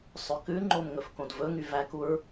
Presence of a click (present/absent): present